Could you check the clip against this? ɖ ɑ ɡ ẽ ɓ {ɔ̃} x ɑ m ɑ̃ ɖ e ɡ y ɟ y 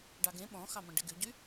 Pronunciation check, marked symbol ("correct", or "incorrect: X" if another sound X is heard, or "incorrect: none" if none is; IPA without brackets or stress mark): correct